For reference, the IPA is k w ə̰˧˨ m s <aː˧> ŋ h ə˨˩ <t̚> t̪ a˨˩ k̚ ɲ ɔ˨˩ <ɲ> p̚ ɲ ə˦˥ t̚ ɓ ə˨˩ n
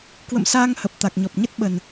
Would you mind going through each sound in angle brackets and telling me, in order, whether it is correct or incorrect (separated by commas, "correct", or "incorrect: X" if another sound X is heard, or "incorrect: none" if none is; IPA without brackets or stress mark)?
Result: correct, incorrect: p̚, incorrect: none